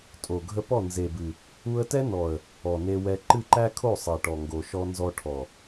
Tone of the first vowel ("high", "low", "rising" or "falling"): low